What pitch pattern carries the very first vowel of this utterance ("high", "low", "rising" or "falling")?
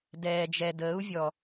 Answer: low